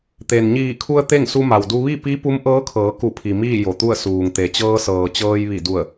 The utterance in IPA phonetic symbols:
t̪e˩nɲiː˧˩kʰu˧ə̯ t̪e˥˨ŋsu˧ma˩wdu˧ ʋi˥˨pi˧˥ pu˧˥mʔɤː˧˥kʰɤː˩˧ ku˧˩pʰi˩ miː˥˨jo˩t̪u˥˨ə̯ suː˩ŋt̪e˩ t͡ɕɤː˧sɤː˩t͡ɕɤː˧j ʋi˧˩ du˧˩ə̯

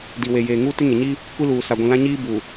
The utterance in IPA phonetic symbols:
di˨we˨ jeː˨ŋuː˦tɪ˦ŋe˨ ɲi˦ | kʷi˦luː˨sa˨ɡʷĩ˨ lã˦ɲiː˦ bu˨

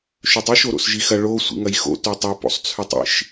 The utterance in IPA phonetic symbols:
ʃɵtˤiʃ oɾo̰sʒixɐ ɭo sʷḭŋɐjxo̰ totˤo po̰sˤt͡sʰʉtˤḭʃ

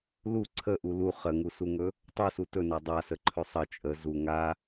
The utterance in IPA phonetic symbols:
lu ǀʰəʔu lu χəŋusuŋɵ | tˤusu tɵna dˤasəǃʰɵ sˤə t͡ʃʼə zu ŋa

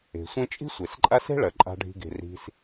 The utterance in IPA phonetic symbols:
e̤˩sʷẽ˦ t͡ʃʼi̤˥sʷe˩sǃʼa˦se̤˥ ɭɐ˩ǃʼa̤˨ ɖʱi̤˨ɡe̤˩ri̤˨s

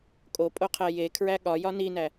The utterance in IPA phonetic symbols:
kʼopʼoqʰæ je kʰɹæɠɒ jɒninæ

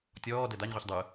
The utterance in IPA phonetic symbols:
tʲɔː dɛdaɲʁʷiç dˤɯ

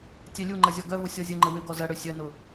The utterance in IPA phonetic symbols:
tʲɛlʲuŋ͡ǃɐ zʲɔɡœvʊ sʲɔzʲəŋ͡ǃə wʏɡɔ zɐɽø sʲœnʊ

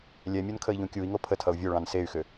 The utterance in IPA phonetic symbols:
lʲɛmʲonkʰəi̯ʎũ kʲui̯ŋo pʰətʰʌu̯ vʲoɭɑ̃n sey̯xʏ

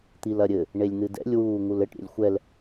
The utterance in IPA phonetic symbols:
t̪ilɐɾʲɘ | ɳelʲn̪ɨdɛ̰lʲ wuːŋulɘʈ ɾʲɛ̰lʲxʷɛl

